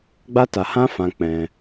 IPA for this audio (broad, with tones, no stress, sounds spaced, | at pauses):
ɡ͡b a˦ t a˧ h ã˦ f ã˧ k͡p ɛ̃˧